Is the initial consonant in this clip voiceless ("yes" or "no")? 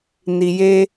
no